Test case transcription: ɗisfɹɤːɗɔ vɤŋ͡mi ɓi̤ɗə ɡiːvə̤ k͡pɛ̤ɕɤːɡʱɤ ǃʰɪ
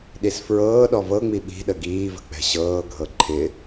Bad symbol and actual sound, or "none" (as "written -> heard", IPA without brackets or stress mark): none